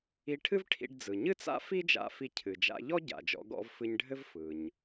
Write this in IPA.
i˧ ʈʰ ɨ˥ v ʈʰ ḭ˧ ɖ d͡z ɯ˩ ɲ ɨ˥ t͡s a̰˥ f i˥ d͡ʒ a̰˧ f i˧ cʰ ɨ˩ d͡ʒ a̰˧ ʎ ɔ˥ ɟ a̰˩ d͡ʒ ɔ̰˧ ɡ ɔ̰˧ v f ɨ˧ ɲ ɖʱ ɘ˥ v f ɯ˩ ɲ

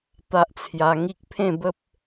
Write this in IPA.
t̪ a˦ ʔ t͡sʰ j a˧ ŋ i˦ k̚ pʰ ẽ˥˧ b ə˦ p̚

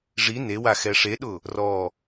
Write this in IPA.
ʐ i n e w a x ɛ ʂ e ɗ ʊ | r ɔ

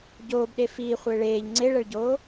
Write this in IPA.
ɟ oː b ɗ e f iː χʷ ɪː ɭ eː ʎ ŋ͡ǀ e ɭ ɛ ɭ ɟ oː

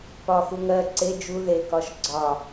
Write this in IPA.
p ɒ x u ŋ ɜ ǀ e d͡ʒ u ð e k ɒ ʃ ɡ͡ǀ ɒ

